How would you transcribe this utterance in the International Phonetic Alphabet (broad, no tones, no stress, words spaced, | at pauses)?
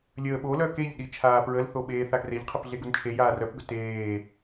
lʲəːɓolœ keʎɗi t͡ʃʰaːpɹəlθo ɓeːθaɡreʎqʰəp ɮeɡunt͡ʃʰejaː rœpɡɵ teː